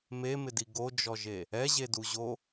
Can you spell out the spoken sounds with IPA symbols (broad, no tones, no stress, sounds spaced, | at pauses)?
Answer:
m e m ɪ d i ɡ o d͡ʒ ɔ ʒ e | ɛ ʑ e d u ʑ o